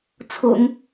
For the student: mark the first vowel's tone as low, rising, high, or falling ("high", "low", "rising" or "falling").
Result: low